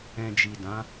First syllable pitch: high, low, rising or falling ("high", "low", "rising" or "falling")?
low